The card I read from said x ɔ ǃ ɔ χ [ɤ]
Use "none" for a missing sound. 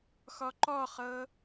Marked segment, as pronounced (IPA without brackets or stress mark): ɤ